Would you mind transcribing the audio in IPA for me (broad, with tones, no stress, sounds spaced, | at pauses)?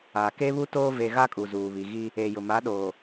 a˨ k e˦ β u˦ t oː˦ v e˨ ɣ a˦ kʼ u˨ z uː˨ β i˨ ɣ i˦ | e˨ j ʊ˨ m a˨˦ ɗ oː˨